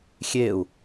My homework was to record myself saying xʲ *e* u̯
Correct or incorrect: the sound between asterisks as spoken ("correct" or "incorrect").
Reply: correct